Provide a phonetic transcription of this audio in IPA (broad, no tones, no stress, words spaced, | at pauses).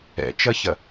ɛ̰t͡ʃɐçɐ